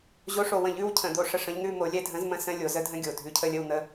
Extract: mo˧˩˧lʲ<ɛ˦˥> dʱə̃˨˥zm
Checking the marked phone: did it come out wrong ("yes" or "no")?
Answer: no